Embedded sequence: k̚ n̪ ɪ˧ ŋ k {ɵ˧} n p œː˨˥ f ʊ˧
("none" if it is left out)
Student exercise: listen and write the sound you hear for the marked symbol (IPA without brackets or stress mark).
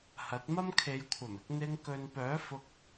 ɵ˨